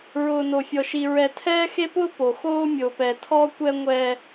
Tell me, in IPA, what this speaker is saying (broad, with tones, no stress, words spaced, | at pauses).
ɹʊː˨no˨fʲɔ˨ʃi˨ ɹɛ˨ tʰɛː˦xe˦pʊː˦ po˨xoː˦ mʲo˨pɛ˨tʰɔ˦kʷɛ˦ ŋʷɛ˦